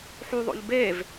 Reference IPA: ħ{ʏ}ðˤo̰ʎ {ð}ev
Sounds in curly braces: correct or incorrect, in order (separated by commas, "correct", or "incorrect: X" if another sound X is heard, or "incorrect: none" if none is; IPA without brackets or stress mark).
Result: incorrect: u, incorrect: b